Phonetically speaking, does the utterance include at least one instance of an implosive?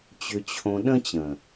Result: yes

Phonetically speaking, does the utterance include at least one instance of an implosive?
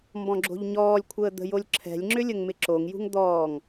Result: no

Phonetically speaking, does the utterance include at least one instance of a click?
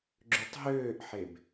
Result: yes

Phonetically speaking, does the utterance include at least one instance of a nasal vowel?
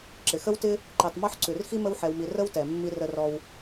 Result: no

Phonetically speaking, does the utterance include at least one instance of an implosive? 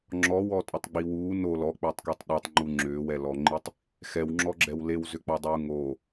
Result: yes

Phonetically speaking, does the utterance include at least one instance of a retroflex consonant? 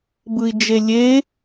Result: no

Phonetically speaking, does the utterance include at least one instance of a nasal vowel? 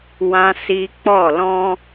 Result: yes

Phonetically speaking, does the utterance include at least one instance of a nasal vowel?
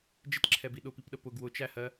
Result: no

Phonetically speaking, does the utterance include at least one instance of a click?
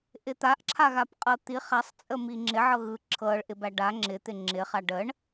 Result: yes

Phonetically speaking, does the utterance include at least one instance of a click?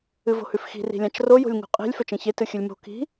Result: no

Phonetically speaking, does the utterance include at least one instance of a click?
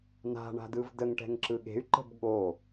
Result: yes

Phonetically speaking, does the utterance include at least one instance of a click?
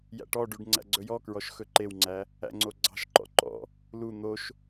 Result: yes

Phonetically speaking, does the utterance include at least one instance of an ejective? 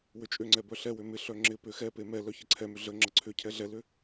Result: yes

